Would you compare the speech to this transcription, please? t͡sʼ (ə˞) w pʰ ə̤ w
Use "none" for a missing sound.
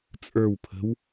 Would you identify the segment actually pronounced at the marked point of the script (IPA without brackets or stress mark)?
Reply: ə˞